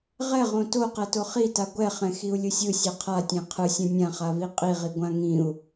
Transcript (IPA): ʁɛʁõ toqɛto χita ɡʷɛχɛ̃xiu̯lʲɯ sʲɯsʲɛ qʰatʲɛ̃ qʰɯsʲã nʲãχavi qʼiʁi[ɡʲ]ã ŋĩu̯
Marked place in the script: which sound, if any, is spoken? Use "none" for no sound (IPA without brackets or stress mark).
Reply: ɡʷ